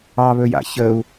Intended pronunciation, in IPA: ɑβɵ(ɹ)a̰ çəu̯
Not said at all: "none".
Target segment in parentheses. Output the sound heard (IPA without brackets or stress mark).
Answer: j